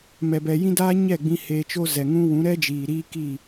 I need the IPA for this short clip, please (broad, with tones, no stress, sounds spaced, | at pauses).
m ɛ˧ b ɛ˧ j ĩ˦ d aː˦ ɲ ɛ˦˨ ɡ͡b ĩ˧ h eː˧ t͡ʃ o˦ z ɛ˨ ŋ ũ˦ w ũ˨˦ ɾ ɛ˦ d͡ʒ iː˨ ɾ iː˦ k i˦˨